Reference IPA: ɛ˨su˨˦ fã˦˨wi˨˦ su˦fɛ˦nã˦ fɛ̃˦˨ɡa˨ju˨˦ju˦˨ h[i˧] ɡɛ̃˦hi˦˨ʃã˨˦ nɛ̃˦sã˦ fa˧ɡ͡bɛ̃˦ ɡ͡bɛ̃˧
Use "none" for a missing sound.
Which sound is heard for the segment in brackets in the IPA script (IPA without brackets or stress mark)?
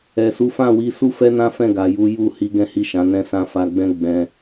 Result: i˧